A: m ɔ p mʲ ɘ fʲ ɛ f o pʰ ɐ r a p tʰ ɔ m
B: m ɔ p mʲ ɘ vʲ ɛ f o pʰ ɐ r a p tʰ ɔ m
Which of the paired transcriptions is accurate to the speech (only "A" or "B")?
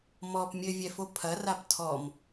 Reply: B